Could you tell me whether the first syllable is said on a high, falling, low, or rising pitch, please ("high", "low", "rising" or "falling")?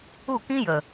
falling